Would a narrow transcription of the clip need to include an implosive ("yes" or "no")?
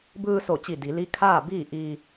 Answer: no